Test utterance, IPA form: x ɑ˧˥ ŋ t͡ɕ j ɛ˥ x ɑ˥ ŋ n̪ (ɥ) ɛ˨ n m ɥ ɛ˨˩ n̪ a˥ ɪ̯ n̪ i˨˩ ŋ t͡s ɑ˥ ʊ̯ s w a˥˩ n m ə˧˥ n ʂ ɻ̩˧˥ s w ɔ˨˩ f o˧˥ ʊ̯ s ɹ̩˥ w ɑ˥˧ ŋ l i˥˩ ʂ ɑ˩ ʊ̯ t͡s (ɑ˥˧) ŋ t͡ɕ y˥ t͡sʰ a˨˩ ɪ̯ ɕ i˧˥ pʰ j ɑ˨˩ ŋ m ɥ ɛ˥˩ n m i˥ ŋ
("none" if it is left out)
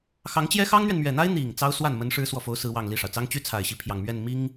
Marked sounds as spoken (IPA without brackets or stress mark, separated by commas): ɥ, ɑ˥